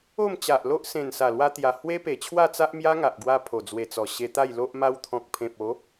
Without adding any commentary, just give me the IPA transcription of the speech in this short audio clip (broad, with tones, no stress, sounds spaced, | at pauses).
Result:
o˥˧ m t͡ɕ a˨ ʔ l o˦ ʔ s ẽ˨˩ n s a˨˩ l w a˧ t̪ j a˨˩ h w e˦ p e˨˩ t͡ɕʰ w a˥˧ t͡s a˦ ʔ m j a˦ ŋ a˨ ʔ ɡ w a˧ pʰ o˨˩ d͡z w e˨˩ t͡s ɔ˨˩ ɕ e˧ t̪ a˥˧ j l o˦ ʔ m a˧ w t̪ʰ ɔ̃˨ k̚ pʰ ẽ˨ p̚ o˨˦